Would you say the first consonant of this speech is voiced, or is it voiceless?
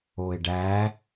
voiced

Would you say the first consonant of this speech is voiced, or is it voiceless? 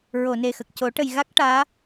voiced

